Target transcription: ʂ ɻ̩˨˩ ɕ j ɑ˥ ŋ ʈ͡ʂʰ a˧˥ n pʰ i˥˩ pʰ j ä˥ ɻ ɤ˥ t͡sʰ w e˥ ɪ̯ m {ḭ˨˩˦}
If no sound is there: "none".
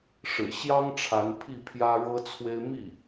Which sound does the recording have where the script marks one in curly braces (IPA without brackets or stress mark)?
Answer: i˥˩